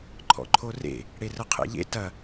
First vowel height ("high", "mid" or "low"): mid